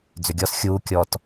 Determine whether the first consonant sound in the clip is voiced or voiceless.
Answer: voiced